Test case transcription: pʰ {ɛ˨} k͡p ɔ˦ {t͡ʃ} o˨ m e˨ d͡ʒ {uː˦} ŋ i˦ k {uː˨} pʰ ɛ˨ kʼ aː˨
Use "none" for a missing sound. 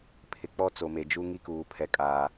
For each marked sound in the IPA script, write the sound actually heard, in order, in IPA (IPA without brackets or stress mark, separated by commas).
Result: ɪ˨, t͡s, u˦, uː˨